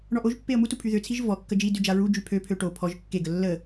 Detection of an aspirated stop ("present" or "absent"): present